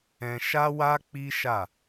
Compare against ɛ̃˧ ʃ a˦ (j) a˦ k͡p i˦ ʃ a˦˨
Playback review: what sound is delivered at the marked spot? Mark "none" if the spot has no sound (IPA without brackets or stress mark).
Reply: w